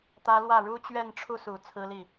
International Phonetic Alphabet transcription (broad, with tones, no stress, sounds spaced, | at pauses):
t̪ ä˥ l w ä˥˩ ɻ u˥ t͡ɕ ɥ ɛ˥˧ n ʈ͡ʂʰ u˥˩ s u˨˩ t͡sʰ ɹ̩˥ l i˥˩